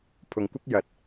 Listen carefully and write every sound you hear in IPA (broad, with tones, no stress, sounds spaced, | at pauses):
pʰ ʊ˨ ŋ kʷ ɐ˥ k̚ j ɐ˨˥ t̚